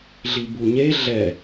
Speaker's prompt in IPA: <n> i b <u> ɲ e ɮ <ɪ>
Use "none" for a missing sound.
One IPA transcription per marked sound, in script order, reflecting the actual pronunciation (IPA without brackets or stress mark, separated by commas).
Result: ɮ, u, ɛ